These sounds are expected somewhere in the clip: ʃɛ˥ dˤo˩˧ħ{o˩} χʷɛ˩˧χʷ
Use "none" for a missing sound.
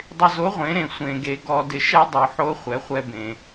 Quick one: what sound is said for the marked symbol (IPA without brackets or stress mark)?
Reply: o˧˥